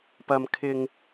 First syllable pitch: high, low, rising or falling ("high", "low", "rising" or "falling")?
low